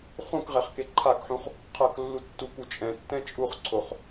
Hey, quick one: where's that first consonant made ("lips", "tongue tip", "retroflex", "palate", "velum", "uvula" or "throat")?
uvula